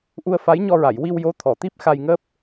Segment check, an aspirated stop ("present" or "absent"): present